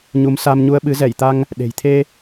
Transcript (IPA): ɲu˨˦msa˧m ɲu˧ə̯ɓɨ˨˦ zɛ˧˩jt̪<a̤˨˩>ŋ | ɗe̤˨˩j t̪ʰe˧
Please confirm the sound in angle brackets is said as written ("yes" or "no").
no